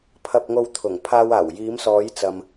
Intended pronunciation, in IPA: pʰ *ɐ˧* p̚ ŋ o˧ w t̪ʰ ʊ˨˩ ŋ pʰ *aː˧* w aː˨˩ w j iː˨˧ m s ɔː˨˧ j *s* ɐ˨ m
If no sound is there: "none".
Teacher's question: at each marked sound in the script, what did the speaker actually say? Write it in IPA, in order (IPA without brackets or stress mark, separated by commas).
ɐ˧, aː˧, t͡s